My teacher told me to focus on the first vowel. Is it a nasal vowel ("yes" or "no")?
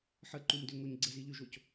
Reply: no